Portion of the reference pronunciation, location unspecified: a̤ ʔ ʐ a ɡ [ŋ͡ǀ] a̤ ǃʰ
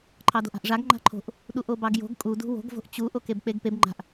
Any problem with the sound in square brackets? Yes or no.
yes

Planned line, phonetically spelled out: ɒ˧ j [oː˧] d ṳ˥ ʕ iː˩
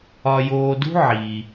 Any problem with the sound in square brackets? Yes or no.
no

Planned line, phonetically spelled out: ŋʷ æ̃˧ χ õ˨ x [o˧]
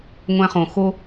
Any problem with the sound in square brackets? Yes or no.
no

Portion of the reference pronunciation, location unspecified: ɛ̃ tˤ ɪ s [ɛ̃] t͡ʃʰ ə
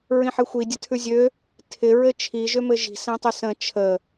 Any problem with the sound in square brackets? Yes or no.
yes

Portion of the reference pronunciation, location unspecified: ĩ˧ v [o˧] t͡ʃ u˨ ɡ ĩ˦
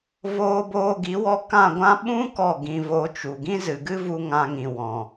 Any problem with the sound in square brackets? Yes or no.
no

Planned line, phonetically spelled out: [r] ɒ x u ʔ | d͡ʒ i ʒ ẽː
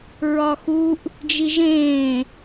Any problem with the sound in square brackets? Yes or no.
yes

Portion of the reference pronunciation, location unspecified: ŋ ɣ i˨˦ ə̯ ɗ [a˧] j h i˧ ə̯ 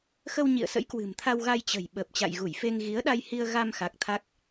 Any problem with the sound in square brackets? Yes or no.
no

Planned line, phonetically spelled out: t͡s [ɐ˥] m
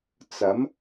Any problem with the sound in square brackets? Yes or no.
yes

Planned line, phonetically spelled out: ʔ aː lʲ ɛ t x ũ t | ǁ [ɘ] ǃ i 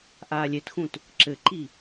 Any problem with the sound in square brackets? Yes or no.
no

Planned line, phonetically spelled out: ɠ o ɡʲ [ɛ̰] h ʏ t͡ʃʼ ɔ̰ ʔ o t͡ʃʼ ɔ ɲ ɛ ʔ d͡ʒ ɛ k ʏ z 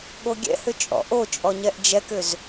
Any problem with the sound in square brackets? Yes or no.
no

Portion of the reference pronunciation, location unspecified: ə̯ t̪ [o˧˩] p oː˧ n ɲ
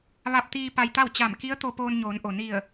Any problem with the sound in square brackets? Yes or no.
yes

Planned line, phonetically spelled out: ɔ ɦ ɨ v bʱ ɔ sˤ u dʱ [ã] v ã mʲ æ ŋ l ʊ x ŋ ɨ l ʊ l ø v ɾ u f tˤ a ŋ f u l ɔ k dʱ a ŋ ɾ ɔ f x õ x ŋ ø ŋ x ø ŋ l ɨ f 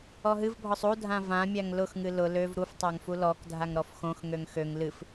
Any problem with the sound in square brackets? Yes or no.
no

